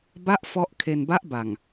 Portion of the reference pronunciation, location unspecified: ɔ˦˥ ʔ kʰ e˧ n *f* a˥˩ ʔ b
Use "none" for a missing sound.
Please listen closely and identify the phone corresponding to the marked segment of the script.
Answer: b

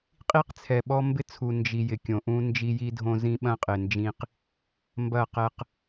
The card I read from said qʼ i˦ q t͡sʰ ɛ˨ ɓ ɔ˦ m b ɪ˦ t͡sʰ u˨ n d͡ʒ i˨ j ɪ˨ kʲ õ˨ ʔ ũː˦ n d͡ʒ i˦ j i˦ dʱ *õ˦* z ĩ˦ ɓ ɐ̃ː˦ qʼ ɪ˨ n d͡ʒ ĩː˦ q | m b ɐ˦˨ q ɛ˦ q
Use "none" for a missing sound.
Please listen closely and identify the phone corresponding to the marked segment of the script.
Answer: õ˦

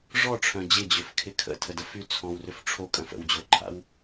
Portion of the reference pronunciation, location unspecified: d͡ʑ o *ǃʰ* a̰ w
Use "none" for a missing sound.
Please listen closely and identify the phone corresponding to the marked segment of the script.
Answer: ǃʰ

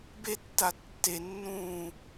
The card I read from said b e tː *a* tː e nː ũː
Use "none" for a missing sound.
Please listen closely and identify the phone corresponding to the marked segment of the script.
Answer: a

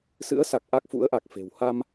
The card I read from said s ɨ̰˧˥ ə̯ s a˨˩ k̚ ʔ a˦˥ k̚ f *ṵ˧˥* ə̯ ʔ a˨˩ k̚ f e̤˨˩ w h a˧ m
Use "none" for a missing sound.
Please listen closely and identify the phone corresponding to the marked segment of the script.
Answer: ṵ˧˥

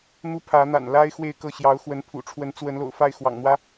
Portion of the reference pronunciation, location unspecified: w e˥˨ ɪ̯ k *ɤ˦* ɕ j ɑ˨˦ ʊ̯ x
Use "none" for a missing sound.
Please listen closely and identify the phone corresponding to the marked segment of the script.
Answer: ɤ˥˨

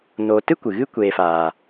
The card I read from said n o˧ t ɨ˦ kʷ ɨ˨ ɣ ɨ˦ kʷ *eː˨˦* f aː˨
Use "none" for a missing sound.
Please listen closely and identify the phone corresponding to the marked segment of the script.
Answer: eː˧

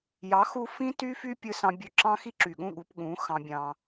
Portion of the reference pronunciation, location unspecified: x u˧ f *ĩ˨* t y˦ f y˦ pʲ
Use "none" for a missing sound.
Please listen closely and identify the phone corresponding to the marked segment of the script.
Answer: ĩ˦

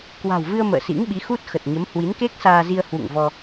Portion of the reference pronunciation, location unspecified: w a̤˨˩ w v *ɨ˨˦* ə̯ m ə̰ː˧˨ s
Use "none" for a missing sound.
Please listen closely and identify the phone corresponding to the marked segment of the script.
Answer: ɨ˧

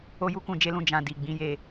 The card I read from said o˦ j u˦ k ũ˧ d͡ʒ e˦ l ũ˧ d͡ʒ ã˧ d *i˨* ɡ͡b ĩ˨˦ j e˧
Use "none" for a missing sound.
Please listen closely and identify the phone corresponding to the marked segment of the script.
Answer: i˨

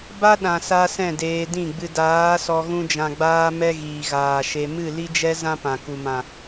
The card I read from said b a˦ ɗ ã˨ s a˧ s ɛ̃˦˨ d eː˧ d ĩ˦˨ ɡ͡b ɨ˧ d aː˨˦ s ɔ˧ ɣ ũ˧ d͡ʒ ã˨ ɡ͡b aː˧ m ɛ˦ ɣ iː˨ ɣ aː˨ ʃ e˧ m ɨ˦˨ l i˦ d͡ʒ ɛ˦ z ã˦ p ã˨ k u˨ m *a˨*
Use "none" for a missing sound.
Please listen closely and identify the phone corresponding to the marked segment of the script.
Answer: ã˨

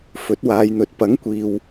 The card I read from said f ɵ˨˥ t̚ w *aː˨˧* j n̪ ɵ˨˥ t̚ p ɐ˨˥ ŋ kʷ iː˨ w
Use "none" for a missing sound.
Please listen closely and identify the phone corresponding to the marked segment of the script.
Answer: aː˨˧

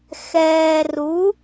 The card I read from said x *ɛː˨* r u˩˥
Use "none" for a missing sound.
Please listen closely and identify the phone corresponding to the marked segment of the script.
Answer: ɛː˨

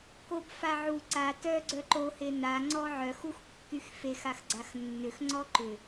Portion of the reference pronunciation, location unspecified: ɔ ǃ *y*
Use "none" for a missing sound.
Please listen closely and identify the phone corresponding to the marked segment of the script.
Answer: ʏ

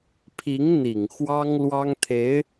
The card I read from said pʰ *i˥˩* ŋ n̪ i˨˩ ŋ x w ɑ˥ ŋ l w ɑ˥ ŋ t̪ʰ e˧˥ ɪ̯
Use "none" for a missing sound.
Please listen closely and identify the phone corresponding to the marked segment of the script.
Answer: i˧˥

